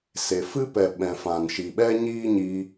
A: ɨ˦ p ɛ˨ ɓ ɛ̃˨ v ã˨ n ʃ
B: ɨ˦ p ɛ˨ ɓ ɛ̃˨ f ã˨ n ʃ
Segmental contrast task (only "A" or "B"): B